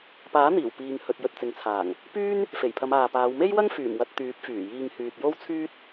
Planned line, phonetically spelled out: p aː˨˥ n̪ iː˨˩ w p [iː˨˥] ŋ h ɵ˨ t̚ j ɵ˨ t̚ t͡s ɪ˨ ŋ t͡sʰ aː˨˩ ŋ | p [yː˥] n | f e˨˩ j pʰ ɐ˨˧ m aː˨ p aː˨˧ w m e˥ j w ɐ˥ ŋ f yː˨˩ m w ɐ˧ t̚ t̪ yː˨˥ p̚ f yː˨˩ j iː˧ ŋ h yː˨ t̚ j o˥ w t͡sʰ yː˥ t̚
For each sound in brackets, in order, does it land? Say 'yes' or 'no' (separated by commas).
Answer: no, yes